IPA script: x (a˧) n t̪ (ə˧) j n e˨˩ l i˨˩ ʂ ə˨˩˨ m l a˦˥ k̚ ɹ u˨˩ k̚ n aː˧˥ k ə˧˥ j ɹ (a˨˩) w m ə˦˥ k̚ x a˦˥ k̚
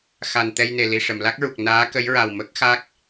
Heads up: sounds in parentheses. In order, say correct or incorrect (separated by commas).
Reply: incorrect, incorrect, correct